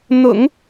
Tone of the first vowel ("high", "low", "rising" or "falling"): low